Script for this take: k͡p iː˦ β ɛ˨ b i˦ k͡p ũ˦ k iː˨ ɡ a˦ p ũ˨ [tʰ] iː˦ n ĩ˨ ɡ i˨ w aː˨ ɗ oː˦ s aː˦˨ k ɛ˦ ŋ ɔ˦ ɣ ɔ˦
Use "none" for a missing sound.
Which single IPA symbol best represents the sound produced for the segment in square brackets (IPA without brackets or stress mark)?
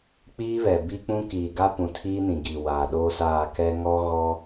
tʰ